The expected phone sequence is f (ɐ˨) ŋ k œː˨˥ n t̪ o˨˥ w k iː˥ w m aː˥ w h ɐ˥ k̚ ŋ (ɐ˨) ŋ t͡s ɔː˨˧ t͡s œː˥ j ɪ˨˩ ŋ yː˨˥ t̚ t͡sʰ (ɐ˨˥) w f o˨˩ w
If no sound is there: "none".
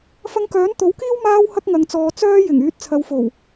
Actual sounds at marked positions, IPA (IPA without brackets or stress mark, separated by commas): ɐ˧, ɐ˨˧, ɐ˨˧